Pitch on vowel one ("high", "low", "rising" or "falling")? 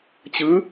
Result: rising